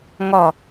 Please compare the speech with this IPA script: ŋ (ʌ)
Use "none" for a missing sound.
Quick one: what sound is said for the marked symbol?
ɒ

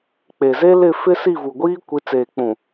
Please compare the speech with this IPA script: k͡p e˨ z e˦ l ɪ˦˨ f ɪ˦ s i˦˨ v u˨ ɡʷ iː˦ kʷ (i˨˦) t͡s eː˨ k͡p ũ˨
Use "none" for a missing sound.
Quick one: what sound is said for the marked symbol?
i˨˦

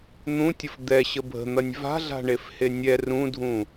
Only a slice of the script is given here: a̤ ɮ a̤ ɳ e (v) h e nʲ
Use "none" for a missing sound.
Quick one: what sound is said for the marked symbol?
f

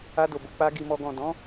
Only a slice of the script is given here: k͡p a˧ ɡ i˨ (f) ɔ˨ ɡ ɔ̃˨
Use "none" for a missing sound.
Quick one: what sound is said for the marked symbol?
m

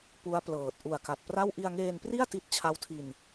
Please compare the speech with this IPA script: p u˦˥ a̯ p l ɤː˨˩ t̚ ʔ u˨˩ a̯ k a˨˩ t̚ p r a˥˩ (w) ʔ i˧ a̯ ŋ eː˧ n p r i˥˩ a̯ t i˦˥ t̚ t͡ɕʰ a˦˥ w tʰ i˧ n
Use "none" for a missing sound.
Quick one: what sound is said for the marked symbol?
w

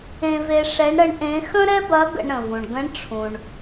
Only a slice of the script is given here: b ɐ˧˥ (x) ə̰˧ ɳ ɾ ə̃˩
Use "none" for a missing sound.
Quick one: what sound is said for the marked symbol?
ɡ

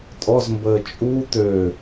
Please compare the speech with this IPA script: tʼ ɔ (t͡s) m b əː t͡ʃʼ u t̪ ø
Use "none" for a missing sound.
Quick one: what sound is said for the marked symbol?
z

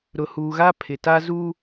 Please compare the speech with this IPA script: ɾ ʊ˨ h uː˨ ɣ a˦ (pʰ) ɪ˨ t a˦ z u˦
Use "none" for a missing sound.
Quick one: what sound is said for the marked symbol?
pʰ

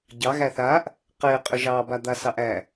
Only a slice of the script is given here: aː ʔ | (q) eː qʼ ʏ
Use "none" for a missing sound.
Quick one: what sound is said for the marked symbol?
q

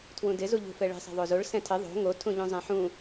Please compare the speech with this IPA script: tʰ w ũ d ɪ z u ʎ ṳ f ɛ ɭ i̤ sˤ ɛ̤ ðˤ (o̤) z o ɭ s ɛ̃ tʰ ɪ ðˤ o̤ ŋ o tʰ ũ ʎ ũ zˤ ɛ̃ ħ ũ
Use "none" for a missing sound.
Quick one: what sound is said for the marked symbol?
o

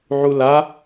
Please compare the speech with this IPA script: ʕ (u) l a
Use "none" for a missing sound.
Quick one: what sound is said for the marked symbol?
u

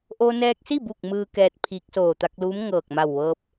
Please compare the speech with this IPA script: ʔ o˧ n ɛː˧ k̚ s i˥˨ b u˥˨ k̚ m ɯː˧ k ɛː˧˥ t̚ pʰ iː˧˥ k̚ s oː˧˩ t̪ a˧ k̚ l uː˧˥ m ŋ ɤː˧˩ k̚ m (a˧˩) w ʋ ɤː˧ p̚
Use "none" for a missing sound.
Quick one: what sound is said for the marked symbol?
a˧˩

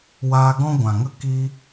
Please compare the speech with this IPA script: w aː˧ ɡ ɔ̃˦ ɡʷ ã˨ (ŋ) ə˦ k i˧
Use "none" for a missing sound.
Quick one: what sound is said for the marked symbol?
ŋ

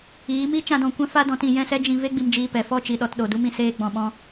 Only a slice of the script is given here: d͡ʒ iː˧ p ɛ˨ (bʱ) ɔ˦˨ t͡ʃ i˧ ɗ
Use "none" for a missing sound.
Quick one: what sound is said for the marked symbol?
f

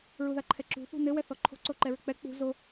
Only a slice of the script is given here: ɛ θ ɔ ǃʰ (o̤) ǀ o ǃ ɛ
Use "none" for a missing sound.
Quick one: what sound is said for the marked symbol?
o̤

